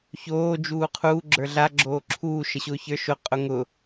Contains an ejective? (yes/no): yes